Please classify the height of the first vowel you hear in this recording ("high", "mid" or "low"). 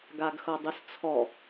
low